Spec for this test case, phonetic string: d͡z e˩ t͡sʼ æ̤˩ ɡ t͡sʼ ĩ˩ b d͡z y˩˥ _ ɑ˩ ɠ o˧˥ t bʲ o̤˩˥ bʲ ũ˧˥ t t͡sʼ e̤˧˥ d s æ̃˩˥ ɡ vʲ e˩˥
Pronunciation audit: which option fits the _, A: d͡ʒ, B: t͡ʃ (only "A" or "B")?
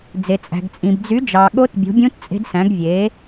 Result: A